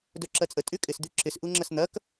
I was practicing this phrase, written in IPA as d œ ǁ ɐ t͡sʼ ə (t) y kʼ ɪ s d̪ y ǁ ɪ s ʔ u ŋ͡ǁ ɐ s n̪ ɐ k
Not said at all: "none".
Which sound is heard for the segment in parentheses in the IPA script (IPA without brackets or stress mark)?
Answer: tʼ